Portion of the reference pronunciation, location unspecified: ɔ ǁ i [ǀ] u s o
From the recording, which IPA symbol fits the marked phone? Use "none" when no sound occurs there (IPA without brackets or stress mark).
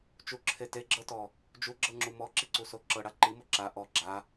ǀ